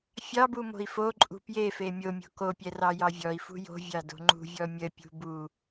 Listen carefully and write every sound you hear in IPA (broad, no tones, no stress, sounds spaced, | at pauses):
fʲ ɑ b u m o̤ i̯ f o ǃʼ ṳ p j e f e mʲ o mʲ o̤ k o pʲ ɛ r ɑ j ɑ vʲ ɔ i̯ f ṳ j o̤ vʲ ɑ d o̤ ŋ͡ǃ ṳ vʲ ɔ mʲ ə pʲ ṳ b u